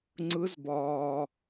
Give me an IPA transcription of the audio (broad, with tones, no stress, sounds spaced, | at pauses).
ŋ͡ǀ ɯ˨˦ z b ɒː˩